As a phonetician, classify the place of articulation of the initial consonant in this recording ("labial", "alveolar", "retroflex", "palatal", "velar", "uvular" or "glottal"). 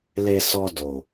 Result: alveolar